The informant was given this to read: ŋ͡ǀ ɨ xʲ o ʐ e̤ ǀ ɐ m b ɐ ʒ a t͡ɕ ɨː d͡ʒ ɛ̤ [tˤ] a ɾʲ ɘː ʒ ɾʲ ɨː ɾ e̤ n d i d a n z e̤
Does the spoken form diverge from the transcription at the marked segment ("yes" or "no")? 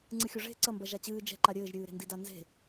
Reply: yes